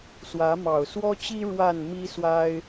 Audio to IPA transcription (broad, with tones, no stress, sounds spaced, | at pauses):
s w ä˨˦ m ɑ˨˩ ʊ̯ s w ɔ˦ t͡ɕ i˦ ɻ w a˥˨ n m i˦ s w a˦ ɪ̯